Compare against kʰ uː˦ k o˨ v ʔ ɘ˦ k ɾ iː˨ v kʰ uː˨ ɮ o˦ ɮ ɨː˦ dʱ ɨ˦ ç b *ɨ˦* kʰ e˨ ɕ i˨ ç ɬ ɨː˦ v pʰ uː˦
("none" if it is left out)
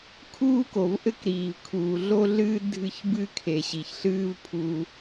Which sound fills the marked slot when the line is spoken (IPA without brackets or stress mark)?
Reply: ɨ˦